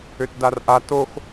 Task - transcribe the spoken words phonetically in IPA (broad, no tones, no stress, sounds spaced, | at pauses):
ø t d a r ʔ a t o x